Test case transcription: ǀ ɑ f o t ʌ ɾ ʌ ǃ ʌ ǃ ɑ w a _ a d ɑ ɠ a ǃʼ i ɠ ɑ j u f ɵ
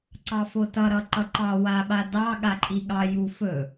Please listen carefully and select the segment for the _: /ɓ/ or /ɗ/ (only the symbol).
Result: ɓ